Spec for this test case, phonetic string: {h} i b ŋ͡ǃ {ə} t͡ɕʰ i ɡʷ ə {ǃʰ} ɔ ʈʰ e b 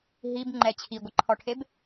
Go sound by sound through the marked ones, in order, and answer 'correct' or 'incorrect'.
incorrect: ɦ, incorrect: ɛ, correct

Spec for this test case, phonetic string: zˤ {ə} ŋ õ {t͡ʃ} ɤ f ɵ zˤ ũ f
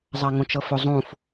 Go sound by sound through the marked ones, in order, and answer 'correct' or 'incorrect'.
incorrect: a, correct

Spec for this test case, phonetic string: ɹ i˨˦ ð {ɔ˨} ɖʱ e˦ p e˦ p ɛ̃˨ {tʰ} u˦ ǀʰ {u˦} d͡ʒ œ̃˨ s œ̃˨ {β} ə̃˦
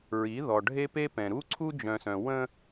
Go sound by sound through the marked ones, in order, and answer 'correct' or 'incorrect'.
correct, incorrect: ɾ, correct, incorrect: w

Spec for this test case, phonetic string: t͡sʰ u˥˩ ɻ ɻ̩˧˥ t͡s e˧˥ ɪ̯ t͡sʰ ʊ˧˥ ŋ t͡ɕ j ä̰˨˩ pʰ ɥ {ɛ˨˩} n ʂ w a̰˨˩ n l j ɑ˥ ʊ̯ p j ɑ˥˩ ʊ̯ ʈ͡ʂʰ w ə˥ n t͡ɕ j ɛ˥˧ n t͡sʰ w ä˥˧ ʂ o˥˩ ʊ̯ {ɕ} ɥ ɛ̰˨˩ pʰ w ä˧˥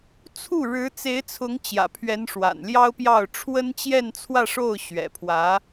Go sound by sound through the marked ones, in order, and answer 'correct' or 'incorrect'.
incorrect: ɛ˧˥, correct

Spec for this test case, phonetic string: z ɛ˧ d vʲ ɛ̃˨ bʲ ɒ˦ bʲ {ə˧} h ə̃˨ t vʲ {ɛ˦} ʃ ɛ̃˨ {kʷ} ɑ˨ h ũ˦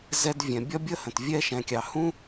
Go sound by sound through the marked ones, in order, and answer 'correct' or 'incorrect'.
incorrect: ə˦, correct, incorrect: kʲ

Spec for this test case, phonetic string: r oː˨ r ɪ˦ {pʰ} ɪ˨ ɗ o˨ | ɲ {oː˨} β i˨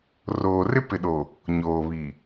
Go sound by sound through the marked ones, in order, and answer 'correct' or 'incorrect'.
incorrect: p, correct

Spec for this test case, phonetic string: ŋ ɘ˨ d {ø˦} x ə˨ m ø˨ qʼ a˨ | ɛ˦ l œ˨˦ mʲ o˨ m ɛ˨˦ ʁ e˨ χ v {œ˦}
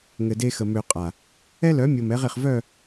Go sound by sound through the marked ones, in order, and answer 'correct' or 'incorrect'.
incorrect: e˦, incorrect: œ˦˨

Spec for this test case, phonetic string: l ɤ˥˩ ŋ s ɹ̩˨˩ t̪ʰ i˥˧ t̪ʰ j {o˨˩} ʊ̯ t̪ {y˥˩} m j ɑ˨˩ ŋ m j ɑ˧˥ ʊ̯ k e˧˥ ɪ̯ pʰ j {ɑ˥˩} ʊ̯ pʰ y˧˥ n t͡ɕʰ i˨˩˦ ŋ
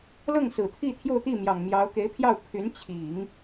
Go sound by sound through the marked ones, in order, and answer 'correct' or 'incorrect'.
incorrect: o˥˧, incorrect: i˥˩, correct

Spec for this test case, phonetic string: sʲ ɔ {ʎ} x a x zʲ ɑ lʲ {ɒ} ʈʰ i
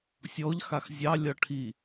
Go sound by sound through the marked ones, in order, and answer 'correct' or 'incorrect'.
correct, correct

